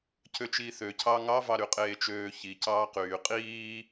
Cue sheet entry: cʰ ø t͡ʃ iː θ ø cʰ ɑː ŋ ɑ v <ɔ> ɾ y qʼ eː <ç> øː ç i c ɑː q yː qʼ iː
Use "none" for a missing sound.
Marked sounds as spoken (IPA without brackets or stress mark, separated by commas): ɑ, t͡ʃ